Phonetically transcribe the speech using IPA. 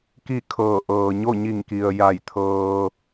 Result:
k i˥˨ kʰ ɤː˧˩ ʔ ɤː˩ ɲ o˥˨ ɲ i˧˩ ŋ k i˩ ə̯ j a˧˩ j t̪ʰ ɤː˧

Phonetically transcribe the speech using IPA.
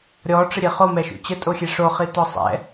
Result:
ɾʲ ɔ ʈ͡ʂ ə ɾʲ e χ o m ɛ ʃ ṵ t͡ɕ ə tʼ o xʲ e ʂ o χ i t ɔ sˤ ɛ̰

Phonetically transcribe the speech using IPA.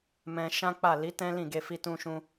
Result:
m ɛ̃˧ ʃ ã˦ k͡p a˦˨ l i˨˦ t ɛ̃˦ l ĩ˦˨ ɡ e˧ f i˧ t ũ˧ ʃ ũ˧

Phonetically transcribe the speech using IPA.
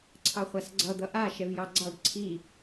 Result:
ǀʰ ɑ χʷ a s ɡ͡ǀ ʌ d̪ ʌ ʔ a ʃ ɛ v j ɑ ɡ͡ǀ ɑ ɖ ǀʰ i

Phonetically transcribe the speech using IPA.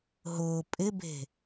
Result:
ɦ ʊː pʼ ɪ b e̤

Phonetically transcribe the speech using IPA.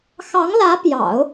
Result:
x ɑ˧˥ ŋ l ä˧˥ p j ɑ̰˨˩˦ ʊ̯

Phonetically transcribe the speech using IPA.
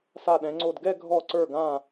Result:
s a˧˩ ɗ ɛ̃˩˧ ŋ͡ǀ o˧˩ d ɡ ɛ˥˧ ɡʱ ɔ˧˩ ǀ ə˞˧˩ ɡ ã˧˩

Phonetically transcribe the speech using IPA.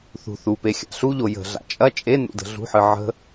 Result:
θ ṳ θ u p e xʲ a̰ ɬ u ʎ o j ə̤ ɮ a̰ t͡ʃʼ ɐ t͡ʃʼ e n ṵ d ə̤ ɮ ṳ ħ ɨ ʕ ə̤

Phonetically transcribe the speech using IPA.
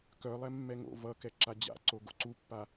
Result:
k œ lˠ ɛ mː ɛ ŋ o̰ v ʌ k ɛ ǁ a d͡ʑ a̰ ǀ o ɡ o̰ ǀ u pː a

